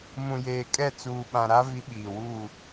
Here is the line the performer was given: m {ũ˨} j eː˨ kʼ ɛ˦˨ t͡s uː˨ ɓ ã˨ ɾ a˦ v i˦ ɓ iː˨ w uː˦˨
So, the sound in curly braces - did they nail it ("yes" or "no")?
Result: yes